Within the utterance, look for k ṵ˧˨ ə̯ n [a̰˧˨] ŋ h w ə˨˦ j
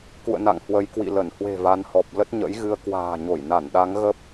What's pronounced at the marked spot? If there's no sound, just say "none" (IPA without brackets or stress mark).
a̰˧˨